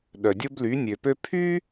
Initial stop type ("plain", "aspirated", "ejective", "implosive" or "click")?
implosive